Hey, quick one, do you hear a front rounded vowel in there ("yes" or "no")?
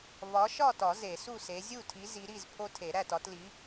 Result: no